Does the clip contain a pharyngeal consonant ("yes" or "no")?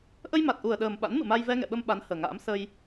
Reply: no